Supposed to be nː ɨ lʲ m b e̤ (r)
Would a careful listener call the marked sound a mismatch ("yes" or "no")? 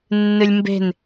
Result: yes